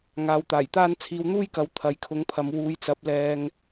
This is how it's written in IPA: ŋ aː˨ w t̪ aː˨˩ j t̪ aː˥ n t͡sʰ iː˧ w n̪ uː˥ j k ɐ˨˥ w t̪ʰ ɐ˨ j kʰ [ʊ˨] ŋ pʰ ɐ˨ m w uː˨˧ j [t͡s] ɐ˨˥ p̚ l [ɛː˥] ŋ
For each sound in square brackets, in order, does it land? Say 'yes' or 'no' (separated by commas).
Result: no, yes, no